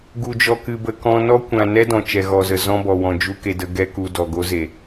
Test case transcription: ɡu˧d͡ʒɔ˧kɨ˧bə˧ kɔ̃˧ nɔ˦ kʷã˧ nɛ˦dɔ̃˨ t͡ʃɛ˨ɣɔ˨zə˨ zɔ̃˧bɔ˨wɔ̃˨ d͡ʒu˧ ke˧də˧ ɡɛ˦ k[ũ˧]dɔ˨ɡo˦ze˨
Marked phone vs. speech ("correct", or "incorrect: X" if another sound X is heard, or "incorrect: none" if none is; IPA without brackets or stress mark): incorrect: u˧